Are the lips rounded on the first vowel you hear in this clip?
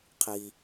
no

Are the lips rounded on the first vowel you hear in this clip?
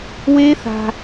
no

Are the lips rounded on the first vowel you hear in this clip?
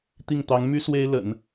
no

